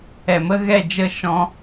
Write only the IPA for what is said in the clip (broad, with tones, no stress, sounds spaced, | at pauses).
ɛ˨ m ə˦ ɣ ɛ˦˨ d͡ʒ ə˦˨ ʃ ɔ̃˦